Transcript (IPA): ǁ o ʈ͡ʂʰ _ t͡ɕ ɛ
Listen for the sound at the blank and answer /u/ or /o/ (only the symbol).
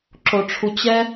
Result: u